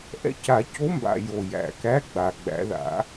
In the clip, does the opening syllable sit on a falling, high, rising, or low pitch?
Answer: rising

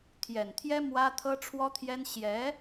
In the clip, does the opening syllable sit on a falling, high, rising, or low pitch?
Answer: low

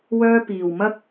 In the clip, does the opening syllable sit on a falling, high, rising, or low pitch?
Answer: high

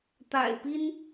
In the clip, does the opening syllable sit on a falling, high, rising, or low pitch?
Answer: low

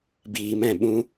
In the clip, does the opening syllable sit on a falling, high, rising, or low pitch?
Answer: low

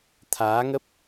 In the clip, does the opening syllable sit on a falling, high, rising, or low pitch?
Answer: rising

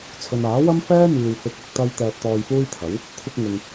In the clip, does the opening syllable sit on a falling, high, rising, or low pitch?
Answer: low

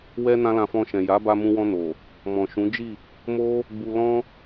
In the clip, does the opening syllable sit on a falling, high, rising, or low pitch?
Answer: high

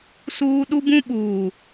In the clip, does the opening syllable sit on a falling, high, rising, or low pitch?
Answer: high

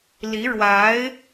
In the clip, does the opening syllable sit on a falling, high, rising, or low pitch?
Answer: rising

